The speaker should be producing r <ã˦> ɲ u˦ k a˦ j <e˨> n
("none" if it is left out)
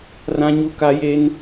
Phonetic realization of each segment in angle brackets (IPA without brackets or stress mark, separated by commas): ã˦, e˦